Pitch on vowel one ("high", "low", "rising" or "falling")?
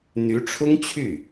rising